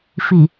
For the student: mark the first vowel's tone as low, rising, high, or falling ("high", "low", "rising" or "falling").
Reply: low